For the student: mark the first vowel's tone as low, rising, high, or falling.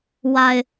low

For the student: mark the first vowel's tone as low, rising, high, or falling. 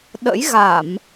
rising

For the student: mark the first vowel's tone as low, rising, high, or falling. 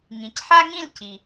low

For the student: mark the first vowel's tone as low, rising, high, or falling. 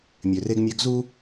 low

